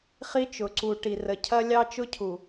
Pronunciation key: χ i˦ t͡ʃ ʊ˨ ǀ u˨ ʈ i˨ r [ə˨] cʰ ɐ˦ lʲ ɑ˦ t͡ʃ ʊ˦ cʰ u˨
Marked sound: correct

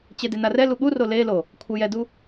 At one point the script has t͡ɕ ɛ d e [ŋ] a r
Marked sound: incorrect: n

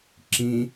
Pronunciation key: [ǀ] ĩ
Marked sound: incorrect: ǁ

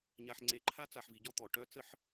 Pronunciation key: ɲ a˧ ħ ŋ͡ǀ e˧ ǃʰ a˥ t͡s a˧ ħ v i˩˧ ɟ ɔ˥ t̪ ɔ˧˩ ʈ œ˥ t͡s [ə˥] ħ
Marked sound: correct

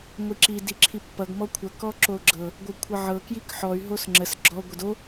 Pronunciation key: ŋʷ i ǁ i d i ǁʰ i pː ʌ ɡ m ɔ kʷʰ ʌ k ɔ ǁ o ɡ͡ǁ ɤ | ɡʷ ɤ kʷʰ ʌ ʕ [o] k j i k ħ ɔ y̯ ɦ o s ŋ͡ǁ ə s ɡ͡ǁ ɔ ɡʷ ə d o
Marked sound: incorrect: ɤ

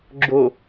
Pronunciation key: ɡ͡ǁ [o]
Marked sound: correct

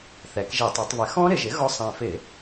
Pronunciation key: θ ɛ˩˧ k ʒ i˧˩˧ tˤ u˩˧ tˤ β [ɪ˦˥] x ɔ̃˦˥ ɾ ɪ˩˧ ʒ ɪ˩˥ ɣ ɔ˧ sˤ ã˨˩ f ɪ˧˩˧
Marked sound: incorrect: ɪ˩˥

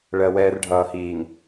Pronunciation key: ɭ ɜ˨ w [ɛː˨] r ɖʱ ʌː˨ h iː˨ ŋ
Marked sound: correct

